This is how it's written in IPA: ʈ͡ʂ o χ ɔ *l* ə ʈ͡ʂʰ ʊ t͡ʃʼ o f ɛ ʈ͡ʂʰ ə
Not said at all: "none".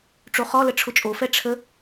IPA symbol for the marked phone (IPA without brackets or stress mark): l